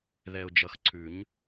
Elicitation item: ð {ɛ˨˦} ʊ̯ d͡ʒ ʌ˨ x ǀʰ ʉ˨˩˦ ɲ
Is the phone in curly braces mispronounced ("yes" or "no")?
yes